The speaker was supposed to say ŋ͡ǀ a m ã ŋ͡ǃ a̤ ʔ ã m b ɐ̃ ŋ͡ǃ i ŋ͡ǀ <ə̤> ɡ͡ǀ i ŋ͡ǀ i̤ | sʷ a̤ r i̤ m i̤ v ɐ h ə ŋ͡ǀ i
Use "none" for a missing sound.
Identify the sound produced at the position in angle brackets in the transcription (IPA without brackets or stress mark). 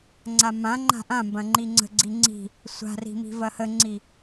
ə̤